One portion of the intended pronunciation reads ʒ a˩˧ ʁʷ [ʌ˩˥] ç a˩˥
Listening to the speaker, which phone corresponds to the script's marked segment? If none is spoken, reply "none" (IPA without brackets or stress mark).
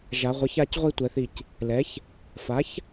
ʌ˩˥